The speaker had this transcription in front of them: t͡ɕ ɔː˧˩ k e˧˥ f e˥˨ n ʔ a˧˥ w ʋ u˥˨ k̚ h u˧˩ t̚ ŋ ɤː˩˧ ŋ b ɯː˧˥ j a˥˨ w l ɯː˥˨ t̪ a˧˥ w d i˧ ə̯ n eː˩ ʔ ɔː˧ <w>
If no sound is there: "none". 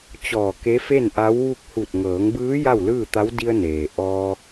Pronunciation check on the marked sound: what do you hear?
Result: none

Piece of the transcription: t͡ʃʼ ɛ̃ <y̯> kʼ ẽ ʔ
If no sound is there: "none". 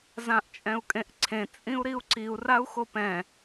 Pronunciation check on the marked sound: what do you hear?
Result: u̯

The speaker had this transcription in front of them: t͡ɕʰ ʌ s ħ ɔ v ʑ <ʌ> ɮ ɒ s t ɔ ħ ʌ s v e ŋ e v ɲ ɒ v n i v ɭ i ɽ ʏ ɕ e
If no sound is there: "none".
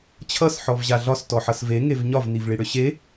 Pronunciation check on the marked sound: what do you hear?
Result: a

